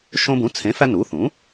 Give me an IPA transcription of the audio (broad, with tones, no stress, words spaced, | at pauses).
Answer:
ʃõ˧bũ˩˥ t͡sʰẽ˩˥fæ˧ nu˩˥θũ˩˥